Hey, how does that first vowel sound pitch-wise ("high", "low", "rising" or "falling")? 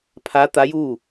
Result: rising